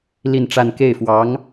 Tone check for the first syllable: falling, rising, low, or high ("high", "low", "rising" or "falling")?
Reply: falling